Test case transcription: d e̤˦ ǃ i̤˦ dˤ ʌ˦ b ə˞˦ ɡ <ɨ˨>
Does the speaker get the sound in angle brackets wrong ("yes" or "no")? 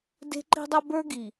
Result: yes